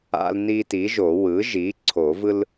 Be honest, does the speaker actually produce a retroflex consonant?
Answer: no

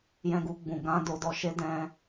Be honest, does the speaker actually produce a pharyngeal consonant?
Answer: no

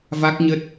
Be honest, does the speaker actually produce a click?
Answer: no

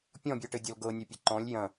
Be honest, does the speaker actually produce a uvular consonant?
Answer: no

